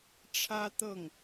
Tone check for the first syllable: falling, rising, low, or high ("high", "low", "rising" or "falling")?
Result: high